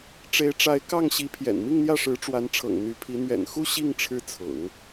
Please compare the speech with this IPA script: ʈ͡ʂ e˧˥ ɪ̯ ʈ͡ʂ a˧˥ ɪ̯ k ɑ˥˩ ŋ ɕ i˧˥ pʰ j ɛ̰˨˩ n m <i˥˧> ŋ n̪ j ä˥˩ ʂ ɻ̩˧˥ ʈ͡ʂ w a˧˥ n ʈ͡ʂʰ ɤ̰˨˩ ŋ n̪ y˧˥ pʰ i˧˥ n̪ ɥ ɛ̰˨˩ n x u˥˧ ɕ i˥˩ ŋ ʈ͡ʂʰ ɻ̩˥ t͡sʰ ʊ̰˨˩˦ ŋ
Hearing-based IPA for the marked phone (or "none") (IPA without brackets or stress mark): i˥˧